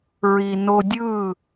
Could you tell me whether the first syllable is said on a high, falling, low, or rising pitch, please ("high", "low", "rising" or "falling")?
low